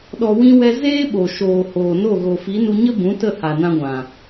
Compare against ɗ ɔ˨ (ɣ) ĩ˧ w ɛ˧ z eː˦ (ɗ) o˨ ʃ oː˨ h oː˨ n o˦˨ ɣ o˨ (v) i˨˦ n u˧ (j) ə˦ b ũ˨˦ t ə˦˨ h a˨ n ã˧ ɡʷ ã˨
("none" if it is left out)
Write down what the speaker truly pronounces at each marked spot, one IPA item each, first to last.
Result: w, ɓ, f, ɲ

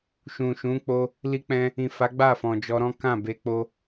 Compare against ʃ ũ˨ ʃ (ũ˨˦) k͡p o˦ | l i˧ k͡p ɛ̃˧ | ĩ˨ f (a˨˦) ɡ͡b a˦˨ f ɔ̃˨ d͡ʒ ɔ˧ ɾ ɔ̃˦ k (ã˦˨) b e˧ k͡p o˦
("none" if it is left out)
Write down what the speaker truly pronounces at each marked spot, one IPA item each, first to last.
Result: ũ˨˦, a˨˦, ã˦˨

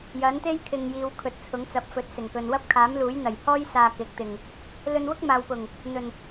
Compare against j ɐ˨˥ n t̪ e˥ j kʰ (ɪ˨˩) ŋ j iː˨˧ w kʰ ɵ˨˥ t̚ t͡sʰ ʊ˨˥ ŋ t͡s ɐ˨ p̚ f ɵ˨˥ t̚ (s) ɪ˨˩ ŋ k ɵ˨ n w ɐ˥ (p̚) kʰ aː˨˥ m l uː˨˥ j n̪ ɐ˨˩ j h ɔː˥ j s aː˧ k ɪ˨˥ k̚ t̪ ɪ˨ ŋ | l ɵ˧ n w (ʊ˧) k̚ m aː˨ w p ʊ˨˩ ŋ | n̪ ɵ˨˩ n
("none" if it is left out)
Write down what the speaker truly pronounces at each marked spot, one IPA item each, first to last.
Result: ɪ˨, s, p̚, ʊ˥

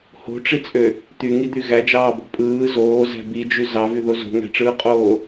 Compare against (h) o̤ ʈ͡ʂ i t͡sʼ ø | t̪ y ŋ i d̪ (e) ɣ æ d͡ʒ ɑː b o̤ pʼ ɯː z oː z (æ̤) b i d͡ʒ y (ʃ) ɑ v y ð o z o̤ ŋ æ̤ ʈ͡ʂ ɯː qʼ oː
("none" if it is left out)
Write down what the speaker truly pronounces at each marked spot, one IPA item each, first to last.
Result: h, y, æ̤, z

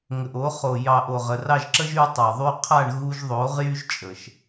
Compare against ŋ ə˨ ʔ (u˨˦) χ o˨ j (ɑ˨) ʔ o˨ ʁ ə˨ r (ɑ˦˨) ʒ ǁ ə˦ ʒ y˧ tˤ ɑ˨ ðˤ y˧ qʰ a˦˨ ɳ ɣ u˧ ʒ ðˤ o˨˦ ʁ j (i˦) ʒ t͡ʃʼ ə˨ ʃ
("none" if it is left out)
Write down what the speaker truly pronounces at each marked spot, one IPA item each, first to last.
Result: o˨˦, ɑ˨, ɑ˦˨, y˦

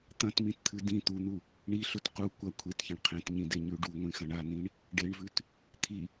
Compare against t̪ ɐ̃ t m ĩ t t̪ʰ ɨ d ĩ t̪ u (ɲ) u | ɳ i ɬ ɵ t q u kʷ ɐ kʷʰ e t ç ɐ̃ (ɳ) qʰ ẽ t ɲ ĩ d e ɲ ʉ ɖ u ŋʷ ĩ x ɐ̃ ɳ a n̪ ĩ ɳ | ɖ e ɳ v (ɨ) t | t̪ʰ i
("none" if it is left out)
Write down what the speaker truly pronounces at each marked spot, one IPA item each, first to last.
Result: n̪, ɳ, ʉ

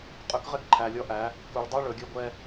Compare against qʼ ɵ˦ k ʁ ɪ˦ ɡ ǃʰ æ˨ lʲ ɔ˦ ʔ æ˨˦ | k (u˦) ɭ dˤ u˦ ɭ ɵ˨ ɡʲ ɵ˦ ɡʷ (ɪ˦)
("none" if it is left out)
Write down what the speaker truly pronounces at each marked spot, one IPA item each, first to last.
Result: u˨, ɛ˦

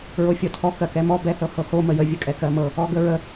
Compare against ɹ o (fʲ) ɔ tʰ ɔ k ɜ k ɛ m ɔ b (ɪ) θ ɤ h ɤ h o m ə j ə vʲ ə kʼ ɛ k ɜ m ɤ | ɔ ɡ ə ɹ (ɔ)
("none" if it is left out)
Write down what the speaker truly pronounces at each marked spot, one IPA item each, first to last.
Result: fʲ, ɛ, ə

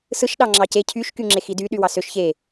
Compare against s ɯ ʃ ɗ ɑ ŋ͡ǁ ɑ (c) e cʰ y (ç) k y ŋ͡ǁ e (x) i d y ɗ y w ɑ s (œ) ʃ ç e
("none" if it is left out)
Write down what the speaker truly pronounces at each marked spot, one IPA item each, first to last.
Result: c, ʃ, x, ø

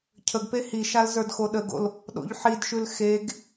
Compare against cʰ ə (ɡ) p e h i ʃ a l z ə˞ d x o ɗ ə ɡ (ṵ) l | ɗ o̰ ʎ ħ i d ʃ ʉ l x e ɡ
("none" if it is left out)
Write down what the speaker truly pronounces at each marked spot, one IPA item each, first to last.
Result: ɡ, o̰

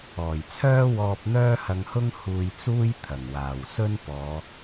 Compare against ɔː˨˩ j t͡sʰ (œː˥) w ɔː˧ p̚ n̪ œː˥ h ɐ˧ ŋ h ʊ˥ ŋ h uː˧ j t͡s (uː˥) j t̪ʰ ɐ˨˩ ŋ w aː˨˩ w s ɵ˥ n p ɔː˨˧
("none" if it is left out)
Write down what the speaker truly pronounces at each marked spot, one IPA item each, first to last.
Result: œː˥, uː˥

